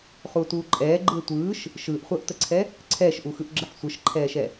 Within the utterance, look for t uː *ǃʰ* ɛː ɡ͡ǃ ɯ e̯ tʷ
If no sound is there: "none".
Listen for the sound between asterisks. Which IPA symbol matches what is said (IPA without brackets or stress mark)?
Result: ǃʼ